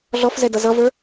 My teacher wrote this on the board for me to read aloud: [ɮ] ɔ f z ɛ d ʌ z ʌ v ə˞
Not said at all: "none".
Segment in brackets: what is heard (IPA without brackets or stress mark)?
ɮ